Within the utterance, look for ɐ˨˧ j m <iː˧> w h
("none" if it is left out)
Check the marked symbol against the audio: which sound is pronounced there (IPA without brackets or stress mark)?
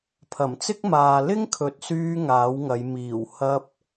iː˨˩